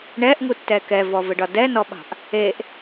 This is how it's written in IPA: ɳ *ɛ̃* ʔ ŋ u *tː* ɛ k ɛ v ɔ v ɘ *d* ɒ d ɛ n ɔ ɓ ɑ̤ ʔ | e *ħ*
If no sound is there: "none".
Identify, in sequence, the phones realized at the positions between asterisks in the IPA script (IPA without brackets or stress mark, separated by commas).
ɛ, tː, ɖ, ʔ